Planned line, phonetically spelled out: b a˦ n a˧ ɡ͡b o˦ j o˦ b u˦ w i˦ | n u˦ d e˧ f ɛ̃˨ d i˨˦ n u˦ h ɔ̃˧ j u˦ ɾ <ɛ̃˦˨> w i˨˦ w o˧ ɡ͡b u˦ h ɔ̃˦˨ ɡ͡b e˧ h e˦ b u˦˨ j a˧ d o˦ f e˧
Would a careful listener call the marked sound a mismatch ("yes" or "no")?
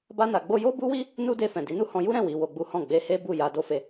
no